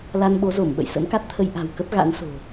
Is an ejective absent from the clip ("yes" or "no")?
yes